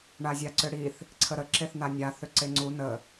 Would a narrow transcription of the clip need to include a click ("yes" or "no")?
yes